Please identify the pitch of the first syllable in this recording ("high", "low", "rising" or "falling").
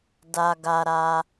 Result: high